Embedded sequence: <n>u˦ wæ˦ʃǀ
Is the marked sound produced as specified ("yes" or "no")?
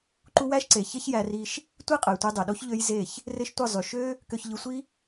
no